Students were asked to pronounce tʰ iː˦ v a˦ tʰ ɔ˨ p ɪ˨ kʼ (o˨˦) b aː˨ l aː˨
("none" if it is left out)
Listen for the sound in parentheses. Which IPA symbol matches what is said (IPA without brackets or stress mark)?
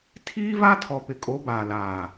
o˨˦